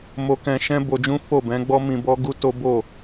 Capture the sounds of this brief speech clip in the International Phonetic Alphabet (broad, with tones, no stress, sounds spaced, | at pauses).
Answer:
m o˧ k ɛ̃˧ ʃ ɛ̃˦ b o˧ d͡ʒ ũ˦ f o˦˨ b ɛ̃˨˦ ɡ͡b ɔ˦ m ĩ˧ b ɔ˦ ɡ u˦ t o˦ b o˦˨